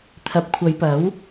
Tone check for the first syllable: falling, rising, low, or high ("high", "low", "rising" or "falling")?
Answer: low